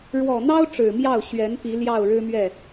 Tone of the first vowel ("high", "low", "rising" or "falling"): low